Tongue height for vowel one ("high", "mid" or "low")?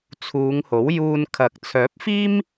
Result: high